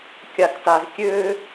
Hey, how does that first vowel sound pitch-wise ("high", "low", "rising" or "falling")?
low